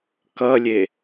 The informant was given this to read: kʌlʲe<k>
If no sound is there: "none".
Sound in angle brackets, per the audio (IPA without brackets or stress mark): none